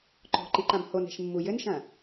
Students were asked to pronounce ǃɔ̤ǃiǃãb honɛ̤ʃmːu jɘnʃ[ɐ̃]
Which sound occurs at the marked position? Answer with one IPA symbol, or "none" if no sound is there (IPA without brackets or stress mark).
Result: ɐ̃